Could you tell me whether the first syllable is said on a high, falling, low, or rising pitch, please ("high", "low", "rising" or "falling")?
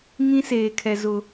high